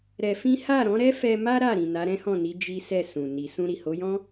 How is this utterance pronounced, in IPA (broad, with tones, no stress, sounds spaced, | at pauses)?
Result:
ɾ ɛ˧ f ĩ˦ h a˦˨ ɾ ɔ̃˨˦ ɾ ɛ˦ f ɛ˧ m a˦ ɾ a˦˨ ɾ ĩ˨ n a˨˦ ɾ ɛ̃˦ h ɔ̃˦˨ n i˨˦ d͡ʒ i˦ s ɛ˦˨ s ũ˨ n i˨ s ũ˧ ɾ i˨ h o˨˦ j ɔ̃˦